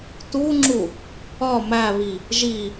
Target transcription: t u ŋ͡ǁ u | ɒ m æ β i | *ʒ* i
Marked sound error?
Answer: no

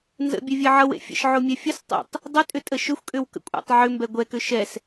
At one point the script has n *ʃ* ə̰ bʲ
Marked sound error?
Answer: yes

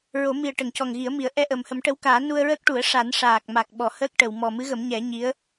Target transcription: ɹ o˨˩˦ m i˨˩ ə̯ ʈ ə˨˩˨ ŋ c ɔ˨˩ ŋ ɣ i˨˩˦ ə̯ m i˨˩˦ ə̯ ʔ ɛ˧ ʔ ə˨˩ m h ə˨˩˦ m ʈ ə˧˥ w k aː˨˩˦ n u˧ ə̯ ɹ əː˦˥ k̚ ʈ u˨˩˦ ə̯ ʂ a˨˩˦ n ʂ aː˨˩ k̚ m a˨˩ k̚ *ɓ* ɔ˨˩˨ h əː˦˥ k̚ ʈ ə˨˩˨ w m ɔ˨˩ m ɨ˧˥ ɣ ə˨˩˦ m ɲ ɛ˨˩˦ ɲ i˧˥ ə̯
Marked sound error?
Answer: no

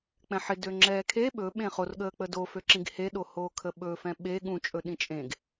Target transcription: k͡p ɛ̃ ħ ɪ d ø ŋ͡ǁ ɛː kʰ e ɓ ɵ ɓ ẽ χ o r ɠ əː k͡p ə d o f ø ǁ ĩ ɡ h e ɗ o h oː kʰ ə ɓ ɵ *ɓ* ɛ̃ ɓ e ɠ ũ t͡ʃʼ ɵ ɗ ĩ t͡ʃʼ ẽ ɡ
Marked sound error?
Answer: yes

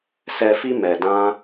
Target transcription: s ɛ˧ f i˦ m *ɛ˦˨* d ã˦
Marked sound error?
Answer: yes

